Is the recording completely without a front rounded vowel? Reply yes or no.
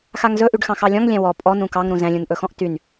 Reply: no